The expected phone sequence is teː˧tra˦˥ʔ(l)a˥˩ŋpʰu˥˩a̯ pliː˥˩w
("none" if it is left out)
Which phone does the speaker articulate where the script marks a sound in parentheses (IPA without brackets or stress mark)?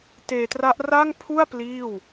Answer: r